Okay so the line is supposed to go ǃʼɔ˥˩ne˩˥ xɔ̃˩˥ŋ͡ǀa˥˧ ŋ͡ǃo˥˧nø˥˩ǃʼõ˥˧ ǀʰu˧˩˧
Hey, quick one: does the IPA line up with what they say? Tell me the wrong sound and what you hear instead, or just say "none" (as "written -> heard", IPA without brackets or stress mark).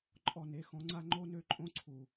none